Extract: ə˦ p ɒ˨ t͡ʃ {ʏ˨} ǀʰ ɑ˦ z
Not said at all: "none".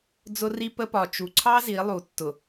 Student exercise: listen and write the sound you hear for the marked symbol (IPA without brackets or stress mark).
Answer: u˨